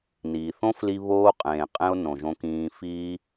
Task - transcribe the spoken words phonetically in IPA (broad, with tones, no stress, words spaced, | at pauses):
niː˨ θõ˦fli˧ βoː˧ qʼẽː˨qʼẽ˧o̯ nõ˨ʒõ˧kĩː˧ fiː˧